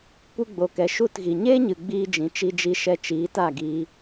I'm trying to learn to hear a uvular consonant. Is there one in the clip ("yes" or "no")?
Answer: no